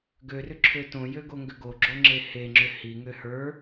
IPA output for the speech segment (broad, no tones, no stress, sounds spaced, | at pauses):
ɡ ø r ʏ ǁʰ ø t õ j ø ɡ o ŋ ɡ ʏ ɡ o ɡ͡ǁ o ŋ͡ǁ e h e ŋ͡ǁ ʏ h i ŋ ø h ə˞